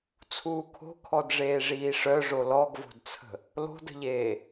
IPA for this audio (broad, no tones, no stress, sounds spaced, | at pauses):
t͡sʰ uː kʰ o̤ kʰ ɔ d ʐ eː ʐ iː ʂ œ ʐ o l ɔ ɡ v o̤ d t͡sʰ ə̤ | l o̤ d ə̤ ʎ eː